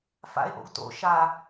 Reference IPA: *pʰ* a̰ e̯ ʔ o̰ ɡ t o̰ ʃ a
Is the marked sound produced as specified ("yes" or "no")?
no